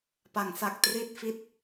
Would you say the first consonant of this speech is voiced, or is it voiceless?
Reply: voiceless